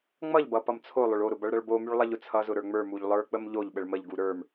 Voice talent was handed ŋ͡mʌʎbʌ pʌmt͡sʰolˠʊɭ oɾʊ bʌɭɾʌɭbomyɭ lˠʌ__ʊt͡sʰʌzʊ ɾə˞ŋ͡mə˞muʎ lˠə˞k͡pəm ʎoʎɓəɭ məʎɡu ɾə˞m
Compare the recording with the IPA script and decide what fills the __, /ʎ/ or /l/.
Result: ʎ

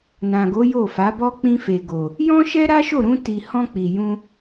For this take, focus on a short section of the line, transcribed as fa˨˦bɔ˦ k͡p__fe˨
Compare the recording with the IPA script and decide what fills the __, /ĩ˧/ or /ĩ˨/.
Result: ĩ˧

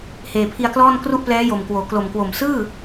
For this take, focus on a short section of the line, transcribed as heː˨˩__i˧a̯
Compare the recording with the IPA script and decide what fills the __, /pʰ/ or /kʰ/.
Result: pʰ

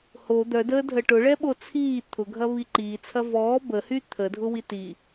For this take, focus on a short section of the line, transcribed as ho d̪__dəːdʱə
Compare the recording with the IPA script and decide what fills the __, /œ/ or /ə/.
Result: œ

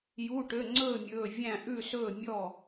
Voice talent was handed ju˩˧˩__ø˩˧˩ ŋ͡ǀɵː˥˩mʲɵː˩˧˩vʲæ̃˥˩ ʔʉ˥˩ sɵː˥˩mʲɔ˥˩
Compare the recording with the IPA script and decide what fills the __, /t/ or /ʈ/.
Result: ʈ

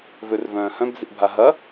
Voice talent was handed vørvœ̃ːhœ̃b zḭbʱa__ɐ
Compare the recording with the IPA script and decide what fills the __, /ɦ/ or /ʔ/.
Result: ɦ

